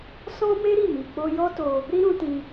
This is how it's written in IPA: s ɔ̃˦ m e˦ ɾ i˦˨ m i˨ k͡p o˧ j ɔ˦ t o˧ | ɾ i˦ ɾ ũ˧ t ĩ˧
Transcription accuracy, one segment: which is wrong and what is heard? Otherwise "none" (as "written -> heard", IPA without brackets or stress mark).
none